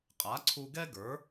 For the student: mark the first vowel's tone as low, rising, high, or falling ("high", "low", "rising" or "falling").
rising